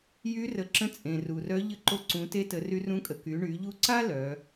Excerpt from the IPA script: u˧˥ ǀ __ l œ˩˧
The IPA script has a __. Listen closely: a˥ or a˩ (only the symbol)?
a˥